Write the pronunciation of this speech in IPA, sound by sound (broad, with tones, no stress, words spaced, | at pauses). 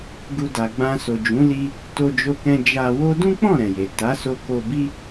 ɡu˧ da˨ɡ͡bã˧so˨d͡ʒũ˨˦ li˧ | to˧d͡ʒo˧kɛ̃˧ d͡ʒa˧wo˦ dũ˦k͡pɔ̃˦˨ ɾɛ̃˨je˨ ta˨˦so˧ ko˧bi˦